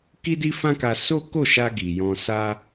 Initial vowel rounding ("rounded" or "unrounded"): unrounded